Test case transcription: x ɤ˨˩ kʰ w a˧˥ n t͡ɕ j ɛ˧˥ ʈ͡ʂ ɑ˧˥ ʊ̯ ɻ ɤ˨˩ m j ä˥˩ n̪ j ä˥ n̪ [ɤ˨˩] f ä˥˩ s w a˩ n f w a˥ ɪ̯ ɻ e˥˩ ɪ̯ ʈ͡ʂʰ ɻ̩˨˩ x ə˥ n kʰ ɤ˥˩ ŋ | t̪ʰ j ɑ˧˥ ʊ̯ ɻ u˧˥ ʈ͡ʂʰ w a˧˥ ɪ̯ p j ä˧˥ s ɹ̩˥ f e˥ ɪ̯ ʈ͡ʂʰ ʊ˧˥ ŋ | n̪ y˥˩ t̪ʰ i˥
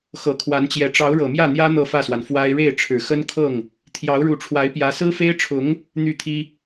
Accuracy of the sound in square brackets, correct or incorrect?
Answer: incorrect: ɤ˥˧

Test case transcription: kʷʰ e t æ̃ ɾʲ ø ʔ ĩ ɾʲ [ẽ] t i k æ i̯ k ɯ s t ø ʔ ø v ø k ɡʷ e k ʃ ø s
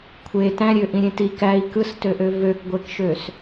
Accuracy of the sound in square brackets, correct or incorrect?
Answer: correct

